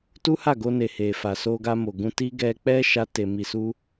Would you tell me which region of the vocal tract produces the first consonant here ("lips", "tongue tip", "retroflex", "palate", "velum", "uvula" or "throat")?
tongue tip